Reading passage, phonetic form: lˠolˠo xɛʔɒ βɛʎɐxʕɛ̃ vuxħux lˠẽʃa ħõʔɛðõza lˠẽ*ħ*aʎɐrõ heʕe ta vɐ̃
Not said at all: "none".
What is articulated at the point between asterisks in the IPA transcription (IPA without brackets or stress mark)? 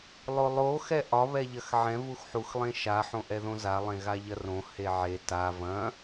ɣ